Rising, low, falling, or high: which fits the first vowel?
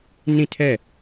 falling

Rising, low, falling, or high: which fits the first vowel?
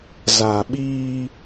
low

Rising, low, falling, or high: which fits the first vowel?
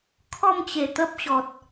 falling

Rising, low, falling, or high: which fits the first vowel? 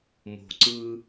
low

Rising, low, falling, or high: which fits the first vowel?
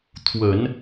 low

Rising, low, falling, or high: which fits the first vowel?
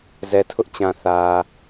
low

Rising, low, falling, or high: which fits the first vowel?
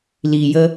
low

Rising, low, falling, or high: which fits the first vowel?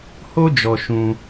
high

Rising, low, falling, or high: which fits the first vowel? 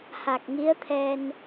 low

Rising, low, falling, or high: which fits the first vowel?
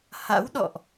rising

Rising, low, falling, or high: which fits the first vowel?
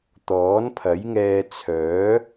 rising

